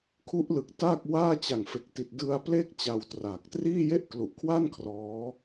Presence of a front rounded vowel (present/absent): absent